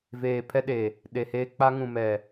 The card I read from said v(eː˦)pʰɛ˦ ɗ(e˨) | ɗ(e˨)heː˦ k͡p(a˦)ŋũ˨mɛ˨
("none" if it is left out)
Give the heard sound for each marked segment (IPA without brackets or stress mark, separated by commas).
eː˨, e˨, e˨, a˦